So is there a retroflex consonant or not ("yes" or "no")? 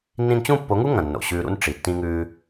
yes